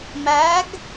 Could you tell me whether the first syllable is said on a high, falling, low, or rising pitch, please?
rising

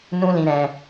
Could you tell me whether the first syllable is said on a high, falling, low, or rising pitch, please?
high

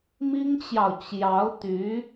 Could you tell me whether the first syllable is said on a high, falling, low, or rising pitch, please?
high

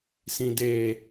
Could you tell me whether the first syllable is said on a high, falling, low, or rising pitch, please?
low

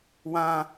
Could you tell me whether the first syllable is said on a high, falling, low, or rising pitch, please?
high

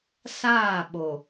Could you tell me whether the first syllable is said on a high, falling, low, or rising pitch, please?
falling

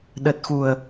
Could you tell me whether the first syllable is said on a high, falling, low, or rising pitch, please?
low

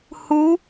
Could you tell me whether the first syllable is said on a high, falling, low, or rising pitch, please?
rising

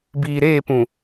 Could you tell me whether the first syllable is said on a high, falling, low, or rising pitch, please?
low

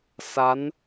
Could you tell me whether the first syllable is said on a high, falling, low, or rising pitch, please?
rising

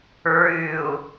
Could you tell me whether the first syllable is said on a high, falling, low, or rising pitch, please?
low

